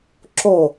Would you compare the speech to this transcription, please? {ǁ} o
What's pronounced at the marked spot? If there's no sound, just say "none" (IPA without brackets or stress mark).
ǁ